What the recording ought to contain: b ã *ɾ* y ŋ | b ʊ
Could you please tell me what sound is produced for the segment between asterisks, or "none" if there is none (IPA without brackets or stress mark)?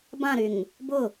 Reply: ɾ